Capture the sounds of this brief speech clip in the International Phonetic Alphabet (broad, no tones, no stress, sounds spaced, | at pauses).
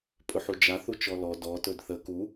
pʼ ɵ ħ u d͡ʒ a θ u t͡ʃ ɔ l ɔ d ɔ t ɵ d θ ə k u